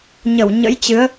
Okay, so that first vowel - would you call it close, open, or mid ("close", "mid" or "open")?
mid